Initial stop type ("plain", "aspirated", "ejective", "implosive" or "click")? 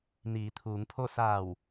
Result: aspirated